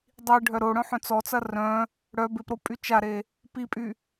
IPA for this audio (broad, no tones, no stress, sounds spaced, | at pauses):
dˤ i ɖʱ œ ɾ o ɽ œ̃ ħ œ̃ t͡s ɔ t͡s ɐ r œ̃ | ɽ œ b ɪ p ɾ o pʼ y t͡ʃ a ɾ e | p i pʼ y